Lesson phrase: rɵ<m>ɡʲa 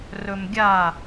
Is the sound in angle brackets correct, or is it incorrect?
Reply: correct